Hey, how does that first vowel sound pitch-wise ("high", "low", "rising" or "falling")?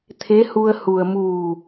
rising